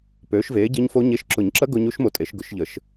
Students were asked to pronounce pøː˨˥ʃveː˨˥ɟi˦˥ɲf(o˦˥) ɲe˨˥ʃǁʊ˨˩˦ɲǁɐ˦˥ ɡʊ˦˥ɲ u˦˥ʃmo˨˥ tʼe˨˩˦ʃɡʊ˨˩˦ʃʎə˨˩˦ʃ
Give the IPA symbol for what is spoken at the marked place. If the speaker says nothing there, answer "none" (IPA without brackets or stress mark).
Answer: o˦˥